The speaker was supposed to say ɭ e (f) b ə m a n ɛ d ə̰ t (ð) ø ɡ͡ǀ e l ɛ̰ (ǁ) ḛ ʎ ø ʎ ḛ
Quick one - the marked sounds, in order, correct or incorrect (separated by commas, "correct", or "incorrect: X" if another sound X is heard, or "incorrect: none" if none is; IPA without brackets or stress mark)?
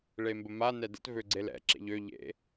incorrect: m, incorrect: v, correct